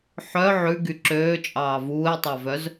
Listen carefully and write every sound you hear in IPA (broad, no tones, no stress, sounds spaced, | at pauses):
ħ œ ʕ ʉ ɡ y ǁ øː t͡ʃʼ ɑː v uː e̯ tˤ ɑ v œ z